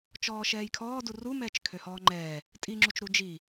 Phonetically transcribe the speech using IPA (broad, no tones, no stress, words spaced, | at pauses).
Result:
t͡ʃɔːʃɛːjkʰɔː durumɛːt͡ʃ kʰøhɔːŋ͡ǃɛː | tʼiŋ͡ǁut͡ʃɾu d͡ʒi